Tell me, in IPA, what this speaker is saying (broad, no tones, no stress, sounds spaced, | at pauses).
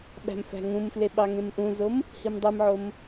ɓ æ̤ m f æ̤ ŋ ũ m f l e ɓ ɑ ŋ ẽ m ʔ ũ z o m | h i m dˤ i m ʕ o m